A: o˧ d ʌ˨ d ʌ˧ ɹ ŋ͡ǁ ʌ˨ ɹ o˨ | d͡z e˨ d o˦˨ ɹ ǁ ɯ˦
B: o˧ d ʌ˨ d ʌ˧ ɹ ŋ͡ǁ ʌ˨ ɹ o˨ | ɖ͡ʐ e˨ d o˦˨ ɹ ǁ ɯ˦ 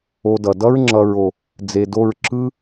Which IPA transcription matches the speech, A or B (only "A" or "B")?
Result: A